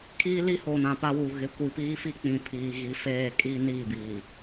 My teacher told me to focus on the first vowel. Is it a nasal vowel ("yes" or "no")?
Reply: no